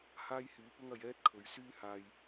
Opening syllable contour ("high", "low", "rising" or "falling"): high